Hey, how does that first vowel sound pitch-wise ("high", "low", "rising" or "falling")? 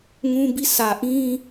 high